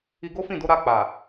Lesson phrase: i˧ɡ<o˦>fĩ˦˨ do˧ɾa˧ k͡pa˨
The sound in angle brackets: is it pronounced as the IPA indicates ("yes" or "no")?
yes